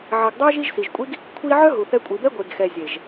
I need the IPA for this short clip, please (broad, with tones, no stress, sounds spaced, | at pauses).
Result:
ʕ i˨ ɡ dˤ ø˦ ʒ i˦ ʒ s i˨ ʒ kʷʼ i˦ ɡ | kʷʰ i˦ ʕ œ˦ ɦ u˨ θ ɛ˧ kʷʼ i˨ b ɛ˦ ɡʷ e˨ ɡ x ɛ˨ zʲ e˨ ʒ